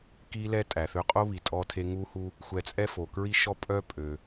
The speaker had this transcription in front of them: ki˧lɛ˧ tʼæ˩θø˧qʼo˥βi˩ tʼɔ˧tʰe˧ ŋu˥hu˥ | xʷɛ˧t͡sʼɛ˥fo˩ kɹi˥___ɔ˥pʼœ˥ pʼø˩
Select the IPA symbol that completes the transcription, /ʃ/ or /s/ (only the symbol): ʃ